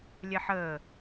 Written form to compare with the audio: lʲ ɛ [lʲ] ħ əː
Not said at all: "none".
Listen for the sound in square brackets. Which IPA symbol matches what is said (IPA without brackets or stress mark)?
none